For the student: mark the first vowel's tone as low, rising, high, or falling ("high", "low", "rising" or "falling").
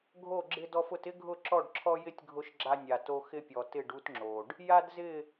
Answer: falling